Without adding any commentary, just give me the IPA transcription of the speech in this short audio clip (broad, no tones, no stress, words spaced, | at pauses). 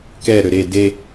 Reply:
kɛɾø ɾe de